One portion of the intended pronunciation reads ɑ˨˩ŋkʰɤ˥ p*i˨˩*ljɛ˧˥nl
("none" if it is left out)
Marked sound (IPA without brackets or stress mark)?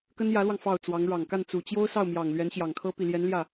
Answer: i˨˩